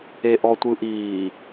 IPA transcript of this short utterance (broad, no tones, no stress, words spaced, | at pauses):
eʔɔtʷɯʔiː